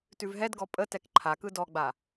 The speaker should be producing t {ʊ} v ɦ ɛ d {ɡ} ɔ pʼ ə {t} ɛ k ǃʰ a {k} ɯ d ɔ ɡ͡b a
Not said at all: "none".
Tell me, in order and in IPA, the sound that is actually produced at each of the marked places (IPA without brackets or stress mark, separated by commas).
ʉ, ɡ, t, k